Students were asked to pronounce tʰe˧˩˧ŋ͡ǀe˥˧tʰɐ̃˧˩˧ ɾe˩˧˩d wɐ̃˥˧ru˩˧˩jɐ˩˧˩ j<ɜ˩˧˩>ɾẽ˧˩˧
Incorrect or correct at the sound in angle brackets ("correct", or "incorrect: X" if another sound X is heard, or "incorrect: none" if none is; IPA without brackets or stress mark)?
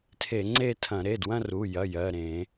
correct